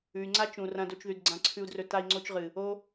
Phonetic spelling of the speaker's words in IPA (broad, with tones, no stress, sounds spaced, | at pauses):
ʉ˨ y̯ ŋ͡ǀ a˦ t͡ʃ ũ˨ r ɐ̃˧ d o˧ t͡ʃ ð ʉ˨ d ɡ͡ǀ ã˧ ǀʰ ʉ˧ u̯ d r ɵ˧ t a˧ i̯ ŋ͡ǀ o˧ t͡ʃ ʁ ɨ˨ | o˦